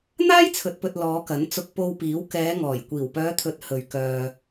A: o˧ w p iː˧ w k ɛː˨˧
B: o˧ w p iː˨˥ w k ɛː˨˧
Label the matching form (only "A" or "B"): B